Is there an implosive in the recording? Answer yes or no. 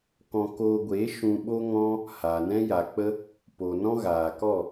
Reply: yes